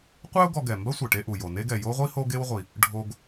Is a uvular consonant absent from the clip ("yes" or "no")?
no